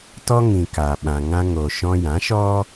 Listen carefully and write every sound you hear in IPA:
tɔ˦ŋĩ˨ka˨ɓã˨ ŋã˧ŋo˨ ʃɔ̃˧jã˨˦ʃɔ˦

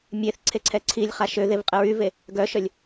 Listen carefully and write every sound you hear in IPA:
mʲeθ ǀʰeǀʰɛǀʰilʲχa ʃøðev qʼəɹyve | ɡœʃœlʲ

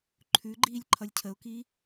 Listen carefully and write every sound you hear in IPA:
ǃʰʉɡ͡ǃiːlʲ ǃʰʌlʲcʰəʊ̯ki

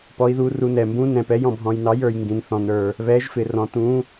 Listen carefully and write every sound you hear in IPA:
pɔ˧˥i̯ðu˧˥ru˧˥nɛ˧ mbũ˧˥ nɛ̃˧pɛ˧˥jɔ̃˧ bʱɔ̃˧jnɑ˧˥jə˞˧j ŋɡĩ˧nθɔ̃˧nə˞˧ | βɛ˧˥ʒfɪ˧rɔ̃˧tũ˧˥

